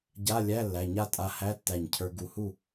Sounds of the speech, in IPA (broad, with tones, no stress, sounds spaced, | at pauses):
ɟ a˧˥˧ lʲ æ˧˥˧ lː æ˩˧˩ ɲ a˥˨ tʼ a˧ h æ˧˥˧ tː æ˧˩ ɲ cʰ ə˞˧ ɡ u˧˩ h u˥˨